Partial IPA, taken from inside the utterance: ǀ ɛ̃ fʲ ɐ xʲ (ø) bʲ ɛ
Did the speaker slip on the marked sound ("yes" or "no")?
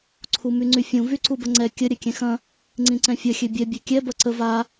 no